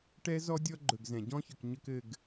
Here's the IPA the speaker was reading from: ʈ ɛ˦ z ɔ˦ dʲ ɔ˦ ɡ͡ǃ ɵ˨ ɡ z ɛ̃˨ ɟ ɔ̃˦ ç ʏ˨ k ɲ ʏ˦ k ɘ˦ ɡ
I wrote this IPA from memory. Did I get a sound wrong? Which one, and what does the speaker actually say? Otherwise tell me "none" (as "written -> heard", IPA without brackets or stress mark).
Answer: none